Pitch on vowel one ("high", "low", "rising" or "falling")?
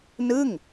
falling